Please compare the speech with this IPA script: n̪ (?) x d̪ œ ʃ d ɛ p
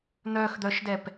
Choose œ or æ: œ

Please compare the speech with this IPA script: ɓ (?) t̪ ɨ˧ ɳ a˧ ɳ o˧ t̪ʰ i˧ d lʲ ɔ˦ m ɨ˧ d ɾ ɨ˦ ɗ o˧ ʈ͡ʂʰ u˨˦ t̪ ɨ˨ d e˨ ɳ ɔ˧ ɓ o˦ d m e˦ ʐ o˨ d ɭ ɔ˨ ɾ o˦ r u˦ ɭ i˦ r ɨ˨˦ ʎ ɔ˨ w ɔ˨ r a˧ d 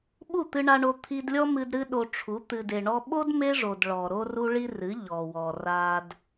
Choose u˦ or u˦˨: u˦˨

